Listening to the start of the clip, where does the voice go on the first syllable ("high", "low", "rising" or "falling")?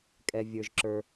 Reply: low